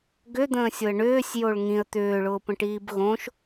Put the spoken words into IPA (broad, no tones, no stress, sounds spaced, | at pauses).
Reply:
ɡ ʏ d̪ ə̃ː sʲ ʊ ə̯ ɳ ʏː sʲ j o ɭ ŋ ĩ ə̯ t̪ ʏː ɭ ʊː p ə̃ ʈ iː b ɣ õ ʃ